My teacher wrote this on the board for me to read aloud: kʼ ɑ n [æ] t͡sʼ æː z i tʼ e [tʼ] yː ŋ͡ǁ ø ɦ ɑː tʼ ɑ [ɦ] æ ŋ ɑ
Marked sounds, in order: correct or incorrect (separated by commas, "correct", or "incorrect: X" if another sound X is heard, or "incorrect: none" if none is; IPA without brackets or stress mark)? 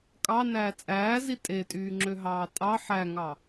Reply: incorrect: æː, correct, incorrect: ħ